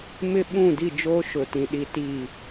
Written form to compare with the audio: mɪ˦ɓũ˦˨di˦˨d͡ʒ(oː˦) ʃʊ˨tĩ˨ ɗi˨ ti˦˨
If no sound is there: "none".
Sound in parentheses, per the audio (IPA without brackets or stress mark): oː˦